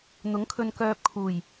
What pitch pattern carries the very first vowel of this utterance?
rising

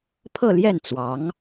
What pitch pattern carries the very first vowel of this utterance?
falling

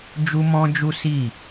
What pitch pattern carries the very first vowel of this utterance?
high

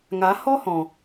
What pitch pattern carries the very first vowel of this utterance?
rising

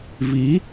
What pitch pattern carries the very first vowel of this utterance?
rising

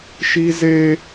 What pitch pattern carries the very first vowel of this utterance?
high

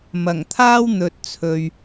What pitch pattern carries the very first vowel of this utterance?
low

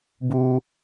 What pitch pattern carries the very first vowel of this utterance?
high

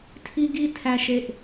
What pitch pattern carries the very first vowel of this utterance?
high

